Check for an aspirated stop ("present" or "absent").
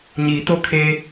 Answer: present